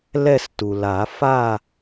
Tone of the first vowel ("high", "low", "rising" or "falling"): falling